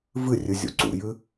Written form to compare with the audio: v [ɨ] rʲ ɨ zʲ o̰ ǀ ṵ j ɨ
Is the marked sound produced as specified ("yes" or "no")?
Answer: yes